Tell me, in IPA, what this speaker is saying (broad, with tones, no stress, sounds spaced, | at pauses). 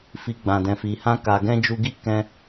f i˨ ɡ͡b ã˨ d ɛ̃˨ f i˨ h ã˧ k a˨ ɡ ɛ̃˧ d͡ʒ u˧ ɡ i˦ k ɛ̃˧